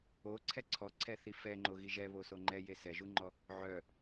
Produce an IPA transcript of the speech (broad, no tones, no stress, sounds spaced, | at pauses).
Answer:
o ǀʰ ɛ ǀʰ ɔ ǀʰ ɛ θ i f ɛ ŋ͡ǃ o ɣ i ʒ ɛ β o s o ŋ͡ǃ ɛ j e s ɛ ʒ u ŋ͡ǃ ɔ | ʕ œ